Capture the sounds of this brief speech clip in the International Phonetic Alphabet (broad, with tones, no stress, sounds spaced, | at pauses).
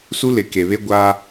s u˦ l ɪ˨ k e˨ β e˦ ɡʷ aː˦